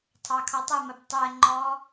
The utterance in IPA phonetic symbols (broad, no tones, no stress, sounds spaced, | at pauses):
tʰ ɑ kʰ ʌ tˤ ə m ə b tˤ ɛ ŋ͡ǃ ɔ